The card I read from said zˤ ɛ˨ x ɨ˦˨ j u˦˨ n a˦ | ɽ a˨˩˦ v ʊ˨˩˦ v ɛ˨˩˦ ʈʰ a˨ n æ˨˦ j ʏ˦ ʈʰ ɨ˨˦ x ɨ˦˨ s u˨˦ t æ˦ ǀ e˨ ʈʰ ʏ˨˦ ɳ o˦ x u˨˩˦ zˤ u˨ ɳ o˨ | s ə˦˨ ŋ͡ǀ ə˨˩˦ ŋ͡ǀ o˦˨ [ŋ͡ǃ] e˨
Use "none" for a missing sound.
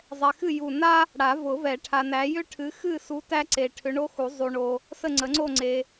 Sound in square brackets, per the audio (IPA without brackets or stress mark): ŋ͡ǀ